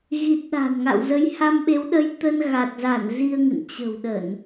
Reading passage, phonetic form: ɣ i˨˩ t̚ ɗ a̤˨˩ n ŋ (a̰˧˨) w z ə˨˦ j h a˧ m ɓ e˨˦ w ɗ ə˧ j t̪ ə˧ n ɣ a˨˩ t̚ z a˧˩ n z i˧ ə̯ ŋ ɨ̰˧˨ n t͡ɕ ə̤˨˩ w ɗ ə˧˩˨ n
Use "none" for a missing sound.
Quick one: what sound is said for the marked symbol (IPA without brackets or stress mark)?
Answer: a̰˧˨